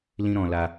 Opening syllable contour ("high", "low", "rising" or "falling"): high